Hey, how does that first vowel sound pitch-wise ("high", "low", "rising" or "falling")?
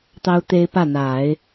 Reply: high